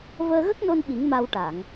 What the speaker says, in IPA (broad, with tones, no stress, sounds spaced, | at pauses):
v əː˧ ɣ ə˦˥ k̚ n o˧ n ɓ i˨˩˦ ŋ m a˧ w ʈ a˨˩˨ ŋ